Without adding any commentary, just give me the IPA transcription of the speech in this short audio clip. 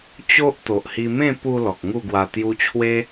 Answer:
t͡ɕo˦ʔ t̪o˨ʔhi˧ mẽ˥˧pu˧ lɔ˨k̚ŋu˥˧ɡwa˧ t̪ju˧t͡ɕʰwe˦

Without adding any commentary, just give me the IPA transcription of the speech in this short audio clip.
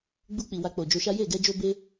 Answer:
ɡ͡bu˧k͡pi˨ wa˧k͡po˨ d͡ʒo˧ʃa˦ je˦˨ ɡɛ˧d͡ʒo˧be˧

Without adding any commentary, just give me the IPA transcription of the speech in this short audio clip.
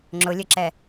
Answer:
ŋ͡ǁʊlʲɘǁɛ

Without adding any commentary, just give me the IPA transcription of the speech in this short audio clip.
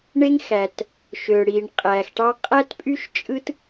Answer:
ɳe˥ŋ xæ˩t | ʃø˩ɽi˩ɳ qʼæ˩xʈɑ˥ qʼæ˥tpʼy˥ʃ t͡ʃʼɯ˥t

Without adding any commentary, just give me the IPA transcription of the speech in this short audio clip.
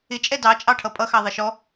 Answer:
ɪt͡ʃʼɛ dɑt͡ʃʼɑʈʰʌ pʼʌxɑ ðˤəʃɔ

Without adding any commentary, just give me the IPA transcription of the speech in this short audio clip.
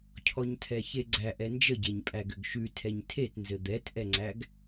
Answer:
cʰɔɲtʰɛçeɡ͡ǀæʔ ɛnd͡ʒəɟeɲpʼæ ɡʏɡʃʉ tʰɛɲtʰetnzɘ d̪ɛtʔɛŋ͡ǀæɡ

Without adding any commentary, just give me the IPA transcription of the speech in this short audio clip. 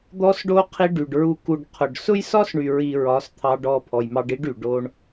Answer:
d̪ɔ˧sɖo˧ qʰi˧ɖy˨ɖɹu˧ ku˨ɖ qʰʊ˨ɖ sʊ˦jsɒ˦sɳy˨ ɹi˨ ɹɒ˨˦st̪ʰɑ˧ɖɔ˧ pʰɔ˨jmɑ˧ɖi˦ɖy˨ ɖo˦ɳ

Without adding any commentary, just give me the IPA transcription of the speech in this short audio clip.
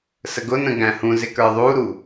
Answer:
səɡʊnə̃ ɡæ̃hũzɪ kə˞ðˤuɾu

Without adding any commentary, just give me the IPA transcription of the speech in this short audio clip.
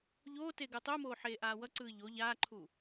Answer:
ʎoː teɡɯtˤumoː ħeːʔaːwʌǀɯː ʎo ʎaːǃʰuː

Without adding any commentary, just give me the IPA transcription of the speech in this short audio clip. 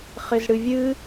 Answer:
χɪzɽɨvʲɨ

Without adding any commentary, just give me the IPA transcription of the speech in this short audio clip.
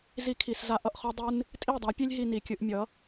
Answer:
zi˧kʰi˨sza˧ ʔʌ˧ʔχœ˦ dˤɨ˦n | tʼi˦˨dˤa˨˦pʲe˦lʲ ɦi˧ni˨kʲɨ˧ʔmʲʌ˨˦

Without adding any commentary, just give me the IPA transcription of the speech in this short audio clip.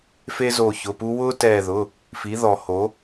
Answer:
fe˦zo˧˩çʊ˩˧˩ pu˦ wʊː˦tɛː˧˩ðʊ˩˧˩ | fi˩˥ðɔ˨˩˦ho˩˥

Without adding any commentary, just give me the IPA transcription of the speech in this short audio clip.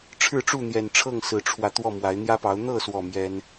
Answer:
ʈ͡ʂʰɻ̩˥˨ʈ͡ʂu˥˨n̪jɛ˨˩nʈ͡ʂʰɤ˥˨ŋ sɹ̩˨˦ʈ͡ʂʰwä˧ t̪wɔ˥˨mwa˨˦ɪ̯ n̪jä˦pɑ˨˦ʊ̯ n̪ɤ˥˨swɔ˨˩ mjɛ˦n

